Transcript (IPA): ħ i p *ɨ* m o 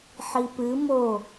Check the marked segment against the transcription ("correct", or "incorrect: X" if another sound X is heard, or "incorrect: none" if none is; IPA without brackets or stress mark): correct